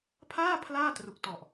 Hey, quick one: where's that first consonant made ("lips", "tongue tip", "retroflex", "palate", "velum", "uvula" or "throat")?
lips